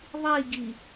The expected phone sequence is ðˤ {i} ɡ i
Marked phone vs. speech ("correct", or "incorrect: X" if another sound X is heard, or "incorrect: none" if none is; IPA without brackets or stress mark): correct